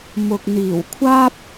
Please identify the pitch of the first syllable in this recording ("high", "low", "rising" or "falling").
low